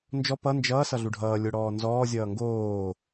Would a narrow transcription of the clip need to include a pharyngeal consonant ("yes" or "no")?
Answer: no